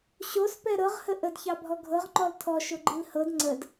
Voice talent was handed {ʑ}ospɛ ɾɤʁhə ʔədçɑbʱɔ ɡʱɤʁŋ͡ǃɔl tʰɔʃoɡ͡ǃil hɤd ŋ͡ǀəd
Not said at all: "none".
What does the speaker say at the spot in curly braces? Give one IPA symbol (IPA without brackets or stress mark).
ɕ